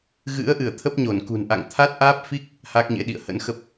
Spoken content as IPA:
ɣ ɨ̰˧˥ ə̯ ʔ ɨ˧˩ ə̯ t̪ʰ ə˦˥ p̚ ɲ o˧˩ n k ṳ˨˩ n ʔ a̰˧˨ ŋ t̪ʰ a˦˥ t̚ ʔ aː˦˥ p̚ f i˦˥ k̚ | h a˦˥ k̚ ɲ ḛ˧˥ ɗ ḭ˧˨ ə̯ h ə̰˧˥ n x ə˦˥ p̚

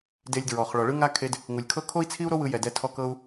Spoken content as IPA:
d e˧ lʲ d ɹ ɔ˩ χ ɭ ɔ˩ ɭ ɯ˥ ŋ a˥ kʰ e˧ d | ŋ u˩ lʲ kʰ ɤ˥ kʰ o˥ i̯ t͡sʰ i˥ u̯ ɾ o˥ w ɯ˧ j ɛ˩ d ɛ˧ tʰ ɔ˧ k ɤ˧ u̯

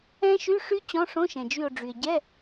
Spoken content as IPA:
ɛ̃˦˥ ʃ y˧˥˧ ʂ y˦˥ t͡ɕ ɔ̃˧˥˧ ʂ õ˧˥˧ ʃ ɛ̃˩ d͡ʒ y˧˩ o̯ ɖ͡ʐ y˩ e̯ ɟ ɛ˧˥˧

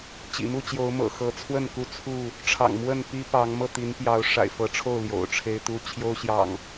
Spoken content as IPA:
t͡ɕ ḭ˨˩ m u˥˨ t͡ɕ j o˨˦ ʊ̯ m ɤ̰˨˩ x ɤ˨˦ t͡sʰ w ə˥˨ n k u˥˨ t͡sʰ u˥˨ | ʈ͡ʂʰ ɑ̰˨˩ ŋ m w ə˥˨ n p i˦ p ɑ˨˦ ŋ m ɤ˥˨ t̪ i˨˦ n p j ɑ˨˦ ʊ̯ ʂ a̰˨˩ ɪ̯ f ɤ˨˦ ʈ͡ʂʰ o˥˨ ʊ̯ l j o̰˨˩ ʊ̯ ʈ͡ʂʰ e˦ ɪ̯ t̪ u˦ t͡ɕʰ j o˦ ʊ̯ ɕ j ɑ̰˨˩ ŋ

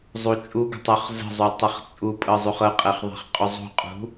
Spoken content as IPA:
zˤ u t͡ʃʼ u ɡ ə̤ tˤ u χ z ə̤ zˤ u tˤ ɤ χ t͡sʼ u pʼ ɤ zˤ u χ ɤ qʼ e χ ðˤ e̤ χ qʼ u zˤ ṳ qʼ ṳ

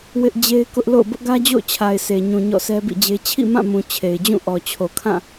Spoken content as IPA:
w ɪ˦ ʔ d͡ʑ e˦ ɪ̯ k ʊ˦ ʔ l o̰˦˨ ʊ̯ b ʊ˦ ʔ ɡ ä˦ d͡ʑ o̰˦˨ ʊ̯ t͡ɕʰ a˨ ɪ̯ sʰ e˨ ɲ ũ˨ ɲ ɔ̰˦˨ sʰ ɛ˦ b ḭ˦˨ d͡ʑ e˦ t͡ɕʰ ḭ˦˨ m ã˦˨ m ũ˨ t͡ɕʰ e˨ ɪ̯ d͡ʑ ũ˦˨ ʔ ɔ˨ t͡ɕʰ o˨ kʰ ã˦˨

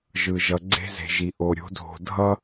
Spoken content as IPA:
ʒ ɯ˨ ʒ ʌ˨ ɡ͡ǀ e̤˦ z e̤˨ ʒ i˨ ʔ o˨ ɾʲ o̤˨˦ dʱ o̤˨ dʱ ʌ˦

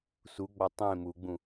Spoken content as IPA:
s u ɡ͡b ɒ tˤ ẽ m u ɡ͡b ũ

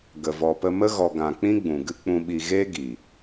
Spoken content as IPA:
ɡ ə˨ v ɔ˨ p ə˧ m ə˦ ɣ ɔ˨ ɡ ã˨ k͡p ĩ˦ ɡ͡b ũ˨ ɡ ɨ˦ k͡p ũ˧ ɓ i˧ ɣ e˦ ɡ i˨

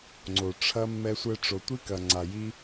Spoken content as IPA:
ŋ͡ǀ o˨ ʈ͡ʂʰ ɐ˦ mː ɛ˧ sʷ ɛ˧ ʈ͡ʂ o˨ tʷ i˦ k ɐ˨ ŋ͡ǀ a˨ j i˦

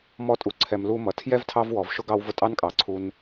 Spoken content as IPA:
m ɔ˦ tʼ u˨ ǀʰ ɛ˨ m l u˦ m ʌ˩ tʰ j ɛ˥ v tʰ ɑ˥ v w ɔ˩ v ʃ ʊ˥ ɡ ɑ˦ w v ʊ˦ tʼ ɑ˥ n kʼ ɑ˩ ǀʰ u˨ n

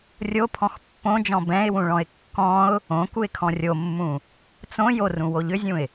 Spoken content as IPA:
rʲ o pʰ ɔ̃ x pː õ d͡ʒ ɔ̃ b ɛ̃ ɪ̯ w ũ ɭ ɔ̃ ɪ̯ kː ɔ̃ ʊ̯ | õ k u ɪ̯ kʰ ɔ̃ rʲ o mː ũ | t͡s õ j o r ũ w o ʎ ʏ zʲ ũ ɪ̯

